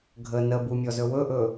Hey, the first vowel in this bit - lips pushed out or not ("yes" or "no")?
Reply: no